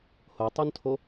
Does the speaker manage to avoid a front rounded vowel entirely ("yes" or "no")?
yes